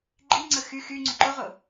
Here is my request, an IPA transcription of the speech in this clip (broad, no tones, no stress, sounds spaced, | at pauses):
ɡ͡ǃ i ŋ͡ǀ ə x y x y ŋ͡ǀ ʏ ǃ ʊ ʁ ʊ